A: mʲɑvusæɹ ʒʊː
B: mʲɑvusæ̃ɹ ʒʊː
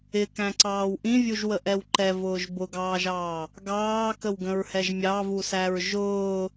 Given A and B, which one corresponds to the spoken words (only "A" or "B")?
A